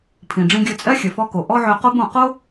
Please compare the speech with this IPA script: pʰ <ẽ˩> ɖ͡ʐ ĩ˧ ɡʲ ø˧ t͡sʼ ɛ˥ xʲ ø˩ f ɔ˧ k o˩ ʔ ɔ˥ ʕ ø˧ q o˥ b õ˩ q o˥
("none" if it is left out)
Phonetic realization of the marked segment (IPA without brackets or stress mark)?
ĩ˩